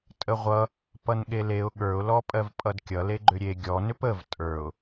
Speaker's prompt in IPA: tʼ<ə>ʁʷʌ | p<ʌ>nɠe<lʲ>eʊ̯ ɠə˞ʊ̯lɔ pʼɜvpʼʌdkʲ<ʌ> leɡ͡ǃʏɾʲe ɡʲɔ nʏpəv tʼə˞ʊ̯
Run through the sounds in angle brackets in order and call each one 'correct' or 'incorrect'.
correct, correct, incorrect, correct

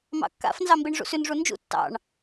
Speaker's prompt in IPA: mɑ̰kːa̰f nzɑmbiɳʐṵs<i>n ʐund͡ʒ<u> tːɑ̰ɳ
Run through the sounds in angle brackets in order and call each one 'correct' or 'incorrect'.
incorrect, incorrect

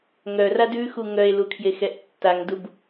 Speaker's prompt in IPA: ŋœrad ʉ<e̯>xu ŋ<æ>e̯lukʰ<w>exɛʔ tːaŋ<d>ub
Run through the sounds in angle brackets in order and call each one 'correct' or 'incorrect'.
incorrect, incorrect, incorrect, correct

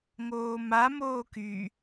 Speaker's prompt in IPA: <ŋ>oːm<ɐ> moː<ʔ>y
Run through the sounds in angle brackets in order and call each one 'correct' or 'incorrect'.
correct, incorrect, incorrect

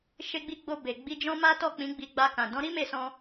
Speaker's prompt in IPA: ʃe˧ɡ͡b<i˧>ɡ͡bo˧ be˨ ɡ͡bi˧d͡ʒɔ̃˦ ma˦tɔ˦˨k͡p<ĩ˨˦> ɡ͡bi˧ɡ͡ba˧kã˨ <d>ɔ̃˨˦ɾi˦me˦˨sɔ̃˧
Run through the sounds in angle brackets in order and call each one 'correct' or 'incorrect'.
correct, correct, correct

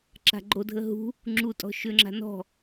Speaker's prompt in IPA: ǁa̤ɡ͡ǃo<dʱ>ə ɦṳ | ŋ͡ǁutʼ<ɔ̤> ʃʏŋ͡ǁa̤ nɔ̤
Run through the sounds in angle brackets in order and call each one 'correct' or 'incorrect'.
correct, correct

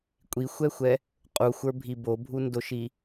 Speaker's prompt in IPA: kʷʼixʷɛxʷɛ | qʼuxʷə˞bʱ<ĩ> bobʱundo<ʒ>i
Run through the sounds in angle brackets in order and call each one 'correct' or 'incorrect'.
incorrect, incorrect

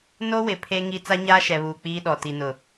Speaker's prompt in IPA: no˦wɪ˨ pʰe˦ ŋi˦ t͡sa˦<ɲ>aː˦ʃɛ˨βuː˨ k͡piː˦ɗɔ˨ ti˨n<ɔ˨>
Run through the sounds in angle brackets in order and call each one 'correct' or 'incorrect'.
correct, incorrect

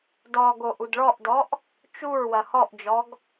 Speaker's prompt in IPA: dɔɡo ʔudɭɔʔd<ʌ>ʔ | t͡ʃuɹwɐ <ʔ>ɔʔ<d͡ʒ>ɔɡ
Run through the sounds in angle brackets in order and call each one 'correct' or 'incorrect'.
incorrect, incorrect, correct

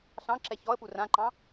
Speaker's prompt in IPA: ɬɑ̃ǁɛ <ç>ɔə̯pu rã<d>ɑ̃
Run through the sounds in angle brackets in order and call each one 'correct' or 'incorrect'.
correct, incorrect

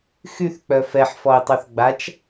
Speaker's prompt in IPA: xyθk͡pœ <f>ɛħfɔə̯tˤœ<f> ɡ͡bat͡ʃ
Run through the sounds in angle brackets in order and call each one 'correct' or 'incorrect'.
correct, incorrect

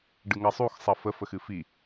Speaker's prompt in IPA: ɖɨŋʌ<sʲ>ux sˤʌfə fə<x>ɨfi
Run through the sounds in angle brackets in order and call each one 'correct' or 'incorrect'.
incorrect, correct

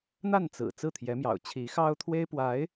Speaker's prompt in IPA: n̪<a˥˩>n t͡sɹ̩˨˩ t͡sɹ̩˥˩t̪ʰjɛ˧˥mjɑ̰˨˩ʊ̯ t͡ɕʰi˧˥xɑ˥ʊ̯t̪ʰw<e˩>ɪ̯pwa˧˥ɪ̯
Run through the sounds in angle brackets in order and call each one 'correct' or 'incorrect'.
correct, incorrect

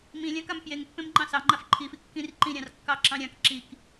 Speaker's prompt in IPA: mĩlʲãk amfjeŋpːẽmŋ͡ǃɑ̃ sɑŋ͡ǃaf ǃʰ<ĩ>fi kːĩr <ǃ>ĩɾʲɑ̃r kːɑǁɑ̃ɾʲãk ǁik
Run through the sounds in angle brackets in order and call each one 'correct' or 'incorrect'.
incorrect, correct

